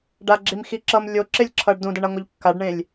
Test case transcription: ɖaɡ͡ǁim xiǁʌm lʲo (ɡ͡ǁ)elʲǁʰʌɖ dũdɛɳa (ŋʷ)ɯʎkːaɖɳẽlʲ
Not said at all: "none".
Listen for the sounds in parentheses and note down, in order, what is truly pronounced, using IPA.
ǁ, ŋʷ

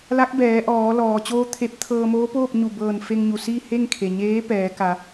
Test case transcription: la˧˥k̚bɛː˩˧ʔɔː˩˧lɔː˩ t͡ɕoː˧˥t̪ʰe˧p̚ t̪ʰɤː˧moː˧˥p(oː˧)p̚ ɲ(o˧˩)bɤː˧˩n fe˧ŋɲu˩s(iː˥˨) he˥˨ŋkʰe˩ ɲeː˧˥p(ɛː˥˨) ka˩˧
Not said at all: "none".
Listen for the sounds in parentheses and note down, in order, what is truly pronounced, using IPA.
oː˥˨, u˧˩, iː˥˨, ɛː˩˧

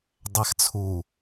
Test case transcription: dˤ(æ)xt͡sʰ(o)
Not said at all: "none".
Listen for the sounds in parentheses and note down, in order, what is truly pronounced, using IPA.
æ, u

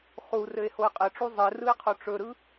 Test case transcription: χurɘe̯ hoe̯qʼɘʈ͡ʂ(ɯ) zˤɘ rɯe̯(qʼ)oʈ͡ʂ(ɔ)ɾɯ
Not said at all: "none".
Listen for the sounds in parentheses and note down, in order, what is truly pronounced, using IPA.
u, qʰ, ɵ

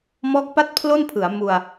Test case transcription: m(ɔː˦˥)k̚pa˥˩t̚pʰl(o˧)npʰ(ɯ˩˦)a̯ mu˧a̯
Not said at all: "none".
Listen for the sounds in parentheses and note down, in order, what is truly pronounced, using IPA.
ɔː˦˥, o˥˩, ɯ˩˦

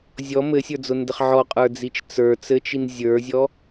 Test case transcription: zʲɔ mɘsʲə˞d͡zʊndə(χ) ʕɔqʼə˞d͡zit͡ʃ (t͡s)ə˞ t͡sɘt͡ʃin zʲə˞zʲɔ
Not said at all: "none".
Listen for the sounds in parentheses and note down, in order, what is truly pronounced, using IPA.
χ, t͡s

